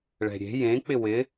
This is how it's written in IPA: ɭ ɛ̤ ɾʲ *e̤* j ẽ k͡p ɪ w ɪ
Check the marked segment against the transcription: correct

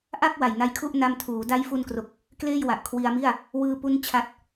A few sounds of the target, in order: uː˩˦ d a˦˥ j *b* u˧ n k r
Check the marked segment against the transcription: incorrect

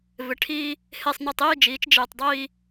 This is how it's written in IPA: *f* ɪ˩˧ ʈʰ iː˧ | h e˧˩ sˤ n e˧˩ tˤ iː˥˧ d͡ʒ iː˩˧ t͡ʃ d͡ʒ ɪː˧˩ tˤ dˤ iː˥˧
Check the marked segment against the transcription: incorrect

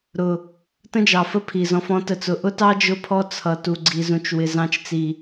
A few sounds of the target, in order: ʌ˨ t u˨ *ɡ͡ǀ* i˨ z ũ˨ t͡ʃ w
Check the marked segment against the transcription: correct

